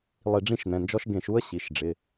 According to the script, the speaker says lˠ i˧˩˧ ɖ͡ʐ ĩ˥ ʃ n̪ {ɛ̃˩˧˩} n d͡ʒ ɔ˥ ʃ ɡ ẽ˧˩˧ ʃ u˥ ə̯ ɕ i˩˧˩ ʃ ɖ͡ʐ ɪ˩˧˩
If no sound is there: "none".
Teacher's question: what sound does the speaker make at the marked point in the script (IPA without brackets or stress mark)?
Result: ɛ̃˩˧˩